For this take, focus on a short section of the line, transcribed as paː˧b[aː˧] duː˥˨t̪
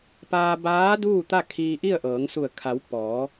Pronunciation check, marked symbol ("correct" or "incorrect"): incorrect